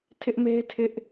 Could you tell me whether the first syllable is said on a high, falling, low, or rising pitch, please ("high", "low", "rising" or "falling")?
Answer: high